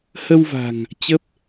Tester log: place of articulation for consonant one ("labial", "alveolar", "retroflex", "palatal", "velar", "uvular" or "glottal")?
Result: glottal